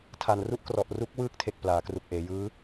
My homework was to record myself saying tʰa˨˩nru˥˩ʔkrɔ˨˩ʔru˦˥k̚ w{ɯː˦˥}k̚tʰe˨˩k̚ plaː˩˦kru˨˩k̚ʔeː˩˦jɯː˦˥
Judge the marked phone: correct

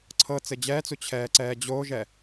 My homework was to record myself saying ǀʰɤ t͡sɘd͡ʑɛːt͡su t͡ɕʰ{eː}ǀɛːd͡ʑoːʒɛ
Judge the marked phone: incorrect: ɛː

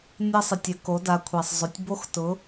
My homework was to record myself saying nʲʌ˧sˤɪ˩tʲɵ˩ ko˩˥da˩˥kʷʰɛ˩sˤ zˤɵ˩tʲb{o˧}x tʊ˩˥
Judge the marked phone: correct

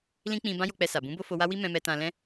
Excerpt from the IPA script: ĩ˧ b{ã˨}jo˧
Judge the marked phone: incorrect: ã˦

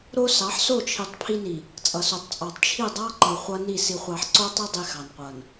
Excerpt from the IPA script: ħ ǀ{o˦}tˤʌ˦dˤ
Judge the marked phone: correct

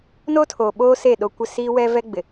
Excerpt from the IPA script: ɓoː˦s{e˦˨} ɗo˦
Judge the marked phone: correct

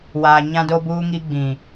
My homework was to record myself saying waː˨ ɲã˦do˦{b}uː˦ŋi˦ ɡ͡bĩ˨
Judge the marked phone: correct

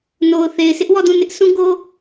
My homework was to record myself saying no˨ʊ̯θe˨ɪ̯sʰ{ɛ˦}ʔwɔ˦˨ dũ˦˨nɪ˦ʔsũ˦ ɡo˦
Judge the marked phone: incorrect: ɪ˦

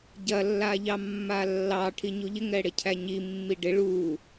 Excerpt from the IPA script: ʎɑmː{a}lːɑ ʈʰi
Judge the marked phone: correct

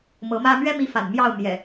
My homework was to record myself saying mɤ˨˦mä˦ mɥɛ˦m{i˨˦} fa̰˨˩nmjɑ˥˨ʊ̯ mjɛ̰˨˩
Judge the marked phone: correct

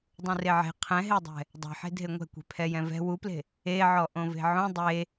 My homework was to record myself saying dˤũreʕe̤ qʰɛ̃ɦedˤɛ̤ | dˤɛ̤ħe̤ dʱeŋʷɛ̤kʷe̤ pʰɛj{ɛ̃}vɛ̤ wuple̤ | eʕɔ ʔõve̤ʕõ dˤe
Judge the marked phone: correct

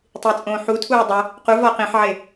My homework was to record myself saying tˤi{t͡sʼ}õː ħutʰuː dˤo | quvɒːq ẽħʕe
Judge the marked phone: correct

